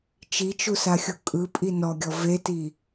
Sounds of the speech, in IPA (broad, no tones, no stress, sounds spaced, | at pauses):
t͡ʃ i t͡ʃ u s a xʲ u kʼ ɯ pʼ i n ɔ ɡʲ ɔ v e t i